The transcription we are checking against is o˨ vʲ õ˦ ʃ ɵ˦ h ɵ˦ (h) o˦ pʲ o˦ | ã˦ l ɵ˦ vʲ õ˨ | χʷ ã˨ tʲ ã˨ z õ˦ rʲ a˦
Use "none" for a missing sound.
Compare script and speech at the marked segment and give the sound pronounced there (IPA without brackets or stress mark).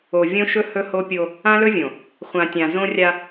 h